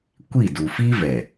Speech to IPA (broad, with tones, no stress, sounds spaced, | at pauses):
kʷ i˦˨ d u˨ f i˦ v ɛ˨